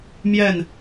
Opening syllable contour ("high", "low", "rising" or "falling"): falling